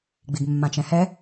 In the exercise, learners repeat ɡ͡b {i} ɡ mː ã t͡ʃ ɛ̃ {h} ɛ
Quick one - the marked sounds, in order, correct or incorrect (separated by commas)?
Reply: correct, correct